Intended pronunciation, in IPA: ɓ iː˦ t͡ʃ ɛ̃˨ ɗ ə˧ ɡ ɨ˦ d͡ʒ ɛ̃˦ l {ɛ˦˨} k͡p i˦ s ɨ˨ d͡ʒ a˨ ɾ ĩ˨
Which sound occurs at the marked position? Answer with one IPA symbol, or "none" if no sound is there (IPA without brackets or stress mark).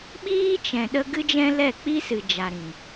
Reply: ɛ˦˨